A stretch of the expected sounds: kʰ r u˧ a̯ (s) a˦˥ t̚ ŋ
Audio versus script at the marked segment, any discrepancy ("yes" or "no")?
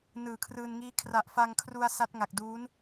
no